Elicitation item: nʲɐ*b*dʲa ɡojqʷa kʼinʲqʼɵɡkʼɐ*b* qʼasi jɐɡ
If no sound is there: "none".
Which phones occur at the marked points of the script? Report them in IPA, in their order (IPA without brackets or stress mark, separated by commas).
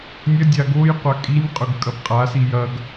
none, b